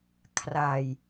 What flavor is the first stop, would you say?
aspirated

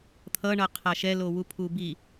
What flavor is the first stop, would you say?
aspirated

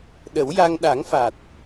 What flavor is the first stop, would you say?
implosive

